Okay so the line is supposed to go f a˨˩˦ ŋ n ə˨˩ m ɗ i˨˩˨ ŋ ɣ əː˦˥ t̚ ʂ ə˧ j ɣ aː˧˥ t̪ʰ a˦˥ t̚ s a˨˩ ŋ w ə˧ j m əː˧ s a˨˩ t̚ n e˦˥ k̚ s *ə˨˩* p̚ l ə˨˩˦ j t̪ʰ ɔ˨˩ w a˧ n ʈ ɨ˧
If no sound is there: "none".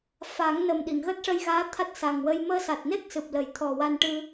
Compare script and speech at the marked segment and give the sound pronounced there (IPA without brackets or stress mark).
ɨ˨˩